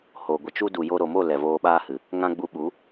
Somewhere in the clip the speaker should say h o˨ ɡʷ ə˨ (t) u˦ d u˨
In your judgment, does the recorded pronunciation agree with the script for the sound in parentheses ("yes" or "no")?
no